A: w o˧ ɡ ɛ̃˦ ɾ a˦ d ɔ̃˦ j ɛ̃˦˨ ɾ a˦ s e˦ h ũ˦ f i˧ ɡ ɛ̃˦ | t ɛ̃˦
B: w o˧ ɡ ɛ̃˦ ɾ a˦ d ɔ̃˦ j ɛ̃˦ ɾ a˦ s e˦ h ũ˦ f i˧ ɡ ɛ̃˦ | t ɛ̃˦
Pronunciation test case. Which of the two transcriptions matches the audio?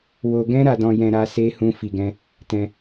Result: B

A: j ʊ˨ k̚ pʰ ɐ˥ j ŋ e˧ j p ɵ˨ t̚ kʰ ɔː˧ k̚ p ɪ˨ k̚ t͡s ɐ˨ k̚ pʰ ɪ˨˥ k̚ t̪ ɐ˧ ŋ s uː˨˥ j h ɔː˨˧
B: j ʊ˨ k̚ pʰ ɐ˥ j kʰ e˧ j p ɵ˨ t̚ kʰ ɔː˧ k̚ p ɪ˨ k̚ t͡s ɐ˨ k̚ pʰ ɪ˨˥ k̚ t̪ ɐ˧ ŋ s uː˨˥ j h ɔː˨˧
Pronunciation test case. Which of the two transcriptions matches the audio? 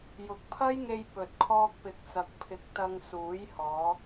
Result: A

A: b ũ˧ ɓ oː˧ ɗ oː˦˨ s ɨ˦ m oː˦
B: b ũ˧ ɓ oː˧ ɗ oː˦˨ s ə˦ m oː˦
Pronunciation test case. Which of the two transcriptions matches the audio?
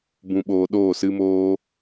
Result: A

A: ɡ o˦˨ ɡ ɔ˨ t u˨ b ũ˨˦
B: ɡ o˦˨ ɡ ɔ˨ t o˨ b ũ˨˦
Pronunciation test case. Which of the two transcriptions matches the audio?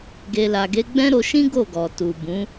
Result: A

